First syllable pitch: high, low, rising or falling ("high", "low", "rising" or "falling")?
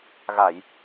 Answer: low